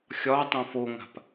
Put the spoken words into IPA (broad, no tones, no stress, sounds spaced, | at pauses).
xʲ ɒ tˤ õ f o ŋ a̤ p